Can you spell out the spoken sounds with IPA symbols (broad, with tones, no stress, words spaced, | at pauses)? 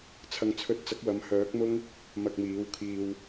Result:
t͡sʰɐ˨ŋt͡sʰɵ˨˥t̚ t͡sɐ˨˥k̚wɐ˨˧mhœː˨˥k̚mʊ˥ŋ | mɐ˧k̚miː˨˥wkʰiː˧w